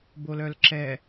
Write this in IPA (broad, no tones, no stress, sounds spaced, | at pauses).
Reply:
b o l œ l ǁ ɛ